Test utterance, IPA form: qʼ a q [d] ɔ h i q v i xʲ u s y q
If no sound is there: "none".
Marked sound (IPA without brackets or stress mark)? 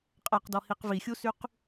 d